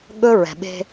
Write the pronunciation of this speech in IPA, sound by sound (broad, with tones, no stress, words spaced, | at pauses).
ɠɵ˦ɹɛ̤˨ɓe̤˦